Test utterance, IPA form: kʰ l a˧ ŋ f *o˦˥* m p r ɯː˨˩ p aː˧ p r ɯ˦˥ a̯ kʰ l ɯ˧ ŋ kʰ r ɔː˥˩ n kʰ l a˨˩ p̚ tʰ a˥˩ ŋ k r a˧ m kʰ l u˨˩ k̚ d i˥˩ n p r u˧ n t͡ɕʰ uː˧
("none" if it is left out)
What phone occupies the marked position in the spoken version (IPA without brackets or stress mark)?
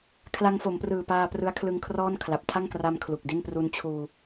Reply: o˩˦